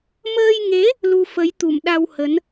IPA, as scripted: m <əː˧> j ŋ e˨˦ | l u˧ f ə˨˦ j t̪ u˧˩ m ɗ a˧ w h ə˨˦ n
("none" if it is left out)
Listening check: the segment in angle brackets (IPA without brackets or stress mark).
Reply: əː˧